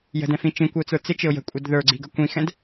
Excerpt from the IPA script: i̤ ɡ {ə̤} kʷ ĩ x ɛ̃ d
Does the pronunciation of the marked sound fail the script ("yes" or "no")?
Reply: yes